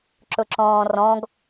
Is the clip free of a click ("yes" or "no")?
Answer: no